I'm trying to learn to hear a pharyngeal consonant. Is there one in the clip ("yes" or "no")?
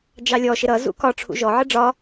yes